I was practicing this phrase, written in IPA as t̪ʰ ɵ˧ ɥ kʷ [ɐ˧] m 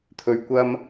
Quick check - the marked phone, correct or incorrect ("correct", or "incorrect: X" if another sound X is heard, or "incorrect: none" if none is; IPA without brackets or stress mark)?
incorrect: ɐ˥